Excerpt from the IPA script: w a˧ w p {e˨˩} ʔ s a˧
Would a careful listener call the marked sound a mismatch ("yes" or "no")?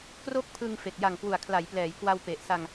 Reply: no